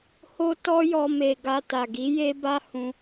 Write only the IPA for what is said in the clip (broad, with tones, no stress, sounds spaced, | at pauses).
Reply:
h o˦ t ɔ˦ j ɔ˧ m e˨ ɡ a˧ t a˨ ɡ i˨˦ j e˦ b a˦ h ũ˧